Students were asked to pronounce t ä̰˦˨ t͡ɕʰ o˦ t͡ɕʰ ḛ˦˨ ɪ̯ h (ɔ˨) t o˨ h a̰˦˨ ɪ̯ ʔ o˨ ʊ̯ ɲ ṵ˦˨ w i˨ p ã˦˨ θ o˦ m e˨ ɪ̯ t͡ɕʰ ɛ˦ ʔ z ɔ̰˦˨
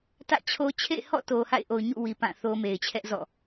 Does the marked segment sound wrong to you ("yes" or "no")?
yes